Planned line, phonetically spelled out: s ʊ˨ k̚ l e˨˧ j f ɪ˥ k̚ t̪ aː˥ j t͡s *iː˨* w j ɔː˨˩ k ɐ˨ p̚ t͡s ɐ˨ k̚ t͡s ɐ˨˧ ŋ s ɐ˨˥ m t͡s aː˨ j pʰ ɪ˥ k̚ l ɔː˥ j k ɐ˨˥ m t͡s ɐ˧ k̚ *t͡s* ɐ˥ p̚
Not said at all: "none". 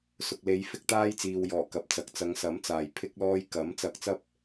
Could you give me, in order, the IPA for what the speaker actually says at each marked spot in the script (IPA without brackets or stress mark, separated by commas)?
iː˨, t͡s